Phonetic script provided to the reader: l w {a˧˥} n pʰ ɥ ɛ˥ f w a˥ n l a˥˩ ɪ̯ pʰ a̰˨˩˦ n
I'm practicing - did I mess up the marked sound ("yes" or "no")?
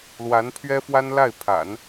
no